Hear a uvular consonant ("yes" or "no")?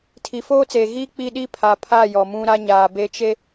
no